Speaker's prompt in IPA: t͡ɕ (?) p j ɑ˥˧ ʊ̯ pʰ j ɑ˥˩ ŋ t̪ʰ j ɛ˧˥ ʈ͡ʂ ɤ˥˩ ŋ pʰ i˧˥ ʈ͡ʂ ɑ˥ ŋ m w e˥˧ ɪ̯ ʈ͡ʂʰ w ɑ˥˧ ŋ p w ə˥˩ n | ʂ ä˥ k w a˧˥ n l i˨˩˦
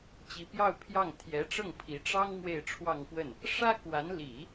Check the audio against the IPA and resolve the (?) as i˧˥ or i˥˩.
i˧˥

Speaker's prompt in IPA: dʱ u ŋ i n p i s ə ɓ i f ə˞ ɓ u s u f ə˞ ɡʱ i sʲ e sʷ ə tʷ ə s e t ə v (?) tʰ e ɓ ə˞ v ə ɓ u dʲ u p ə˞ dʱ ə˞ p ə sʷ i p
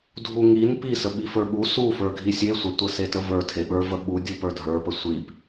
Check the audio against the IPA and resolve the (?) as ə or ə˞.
ə˞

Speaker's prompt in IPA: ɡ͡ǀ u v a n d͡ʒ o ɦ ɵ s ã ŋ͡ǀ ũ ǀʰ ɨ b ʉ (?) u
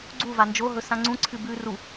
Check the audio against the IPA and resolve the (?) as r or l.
r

